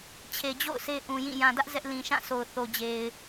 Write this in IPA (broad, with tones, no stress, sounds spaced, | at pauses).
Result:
t͡ɕʰ e˨ d͡ʑ o̰˦˨ ʊ̯ sʰ e˦ ʔ ũ˨ j ĩ˦˨ j ã˨ d ä˦ ʔ z ɛ˦ ʔ l ĩ˨ ʃ ã˦˨ sʰ o˨ ʊ̯ θ o˨ d͡ʑ e˨ ɪ̯